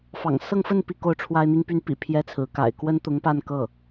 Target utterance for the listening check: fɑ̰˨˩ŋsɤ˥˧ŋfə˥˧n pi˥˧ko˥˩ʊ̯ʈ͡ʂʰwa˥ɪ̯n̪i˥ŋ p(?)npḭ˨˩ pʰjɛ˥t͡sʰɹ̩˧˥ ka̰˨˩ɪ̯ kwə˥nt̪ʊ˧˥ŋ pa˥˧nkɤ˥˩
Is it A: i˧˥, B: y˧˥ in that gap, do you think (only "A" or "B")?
B